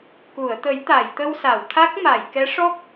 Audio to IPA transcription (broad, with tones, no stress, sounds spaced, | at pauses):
k u˨˩˨ ə̯ t̪ ə˨˩˦ j t̪ a˨˩˨ j t̪ ə˧ w s a˨˩˨ w t̪ʰ a˦˥ k̚ m a˨˩˨ j k ɛ˧˥ ʂ ɔ˦˥ k̚